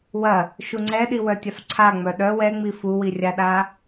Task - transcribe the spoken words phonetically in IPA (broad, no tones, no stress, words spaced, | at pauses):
wɐ | ʃuŋ͡ǀɛɗi wœtʲafǀʰa ŋ͡mœɗœ wɛŋ͡mi fuwirʲaɗa